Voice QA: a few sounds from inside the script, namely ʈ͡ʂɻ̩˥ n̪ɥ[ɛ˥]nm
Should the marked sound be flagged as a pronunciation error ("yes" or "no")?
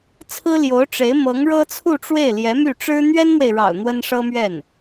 no